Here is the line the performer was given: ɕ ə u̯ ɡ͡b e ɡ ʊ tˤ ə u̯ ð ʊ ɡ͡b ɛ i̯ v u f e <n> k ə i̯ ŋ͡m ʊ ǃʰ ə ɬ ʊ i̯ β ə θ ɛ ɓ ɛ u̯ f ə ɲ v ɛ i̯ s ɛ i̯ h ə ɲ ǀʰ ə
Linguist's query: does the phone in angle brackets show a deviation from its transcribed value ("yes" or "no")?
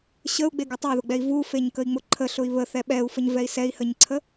yes